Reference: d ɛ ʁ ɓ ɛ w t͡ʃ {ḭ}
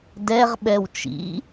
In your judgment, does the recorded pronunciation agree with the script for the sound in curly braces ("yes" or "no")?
yes